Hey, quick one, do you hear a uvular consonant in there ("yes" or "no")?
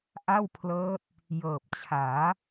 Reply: no